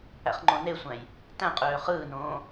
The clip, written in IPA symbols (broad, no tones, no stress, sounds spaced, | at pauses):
æ̰ χ ŋ͡ǃ õ n e sʷ æ̃ j | t æ̃ qʼ øː χ ɯː n õː